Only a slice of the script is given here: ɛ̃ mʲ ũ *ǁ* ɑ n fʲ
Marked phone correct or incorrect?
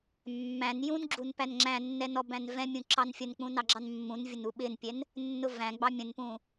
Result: correct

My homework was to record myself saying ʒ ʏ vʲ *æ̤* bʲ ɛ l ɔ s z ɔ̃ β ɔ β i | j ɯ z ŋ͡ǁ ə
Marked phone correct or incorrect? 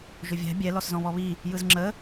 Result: correct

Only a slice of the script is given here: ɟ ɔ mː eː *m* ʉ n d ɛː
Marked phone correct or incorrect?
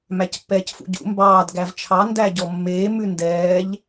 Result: correct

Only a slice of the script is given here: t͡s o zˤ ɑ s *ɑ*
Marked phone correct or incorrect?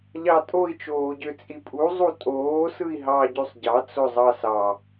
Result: correct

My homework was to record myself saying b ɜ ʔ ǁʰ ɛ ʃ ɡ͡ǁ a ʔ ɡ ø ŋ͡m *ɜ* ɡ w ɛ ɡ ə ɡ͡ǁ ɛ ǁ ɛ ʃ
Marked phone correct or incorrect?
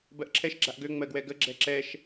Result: correct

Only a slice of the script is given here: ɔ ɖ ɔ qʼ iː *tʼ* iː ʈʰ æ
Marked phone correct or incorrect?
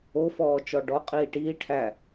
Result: incorrect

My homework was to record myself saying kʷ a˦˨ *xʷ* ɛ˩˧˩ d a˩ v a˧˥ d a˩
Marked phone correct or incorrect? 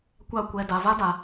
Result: incorrect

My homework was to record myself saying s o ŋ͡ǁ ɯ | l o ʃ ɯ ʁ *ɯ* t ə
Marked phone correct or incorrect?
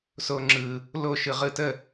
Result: correct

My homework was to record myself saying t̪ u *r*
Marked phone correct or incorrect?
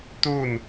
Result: incorrect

